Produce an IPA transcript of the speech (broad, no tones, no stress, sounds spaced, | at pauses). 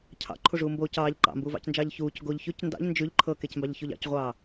cʰ ɑ̰ ǃʰ u ʐ uː m b oː c ɑː ʎ ǃ ɑ̰ m b uː v ɑ̰ c n d͡ʒ ɑː ʎ ç uː c ɡ o ʎ ç ʉ c n d ɑ̰ ʎ n d͡ʒ ʉ ʎ ǃʰ ɤ k e c m b ɑ ʎ ç o ʎ ɑ̰ c ʁʷ ɑː